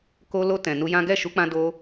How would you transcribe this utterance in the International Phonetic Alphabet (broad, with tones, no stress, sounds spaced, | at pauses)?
k o˧ l o˧ t ɛ̃˨ n u˧ j ã˦ ɡ ɛ˦˨ ʃ u˨˦ k͡p ã˧ d o˧